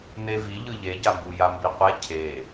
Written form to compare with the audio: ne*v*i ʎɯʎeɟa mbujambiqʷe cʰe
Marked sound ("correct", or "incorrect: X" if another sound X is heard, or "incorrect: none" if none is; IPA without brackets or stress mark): correct